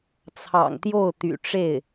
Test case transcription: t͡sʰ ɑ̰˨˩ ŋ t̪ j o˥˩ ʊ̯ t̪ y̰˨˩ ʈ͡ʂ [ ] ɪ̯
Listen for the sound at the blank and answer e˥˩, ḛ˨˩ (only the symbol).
e˥˩